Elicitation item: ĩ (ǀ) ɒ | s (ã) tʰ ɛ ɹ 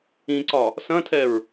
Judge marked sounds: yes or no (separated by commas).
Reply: yes, no